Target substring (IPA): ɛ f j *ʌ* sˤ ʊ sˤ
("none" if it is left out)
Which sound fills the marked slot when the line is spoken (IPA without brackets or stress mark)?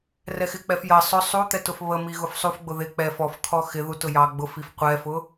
ʌ